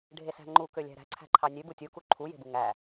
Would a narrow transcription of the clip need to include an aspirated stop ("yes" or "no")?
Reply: yes